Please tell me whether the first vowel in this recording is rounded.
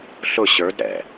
yes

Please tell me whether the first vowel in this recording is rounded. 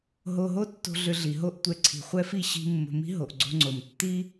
yes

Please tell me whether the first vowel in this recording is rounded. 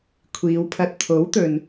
no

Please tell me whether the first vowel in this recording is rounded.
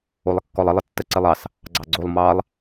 yes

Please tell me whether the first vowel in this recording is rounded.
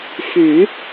yes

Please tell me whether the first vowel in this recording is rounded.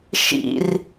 no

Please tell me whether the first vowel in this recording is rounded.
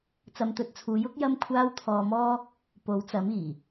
no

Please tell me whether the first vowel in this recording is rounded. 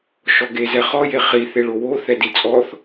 yes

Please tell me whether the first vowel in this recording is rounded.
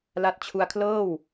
no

